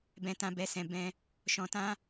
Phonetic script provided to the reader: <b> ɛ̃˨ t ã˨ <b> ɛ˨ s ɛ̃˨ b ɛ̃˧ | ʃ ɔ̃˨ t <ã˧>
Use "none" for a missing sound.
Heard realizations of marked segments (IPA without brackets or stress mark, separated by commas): b, b, ã˧